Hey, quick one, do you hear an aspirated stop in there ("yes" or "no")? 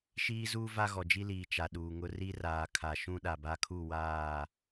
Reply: yes